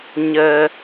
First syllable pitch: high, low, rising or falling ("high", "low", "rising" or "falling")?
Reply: low